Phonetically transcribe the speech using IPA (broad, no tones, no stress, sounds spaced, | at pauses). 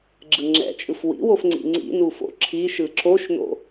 ɡ͡ǁ ɯ ŋ͡ǁ ɛ̰ t͡ʃʼ ɯ f w ḭ w o f ŋ͡ǀ ḭ ŋ͡ǀ ḭ n u f o̰ ǁʰ i ʃ ɯ ǁ o ʃ n o̰